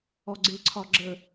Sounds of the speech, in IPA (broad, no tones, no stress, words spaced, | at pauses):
ɔɡ͡ǀɪǀʰɒ ɡ͡ǁə